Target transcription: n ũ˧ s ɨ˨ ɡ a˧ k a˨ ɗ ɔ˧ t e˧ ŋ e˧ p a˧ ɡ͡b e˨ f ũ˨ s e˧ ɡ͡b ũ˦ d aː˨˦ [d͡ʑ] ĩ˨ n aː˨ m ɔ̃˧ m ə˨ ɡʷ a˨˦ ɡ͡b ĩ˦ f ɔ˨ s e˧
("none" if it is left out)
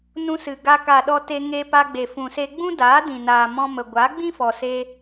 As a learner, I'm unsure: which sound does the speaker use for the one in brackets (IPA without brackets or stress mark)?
d